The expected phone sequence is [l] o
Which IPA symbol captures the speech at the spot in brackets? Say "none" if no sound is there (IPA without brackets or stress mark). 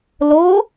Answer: l